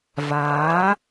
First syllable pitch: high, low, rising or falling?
rising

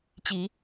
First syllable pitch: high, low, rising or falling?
rising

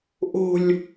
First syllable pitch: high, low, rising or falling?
low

